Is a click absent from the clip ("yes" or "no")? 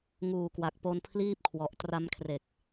yes